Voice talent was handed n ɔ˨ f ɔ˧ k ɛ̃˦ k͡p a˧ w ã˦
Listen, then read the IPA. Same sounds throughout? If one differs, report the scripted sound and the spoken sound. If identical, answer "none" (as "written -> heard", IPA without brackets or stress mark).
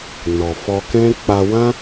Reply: none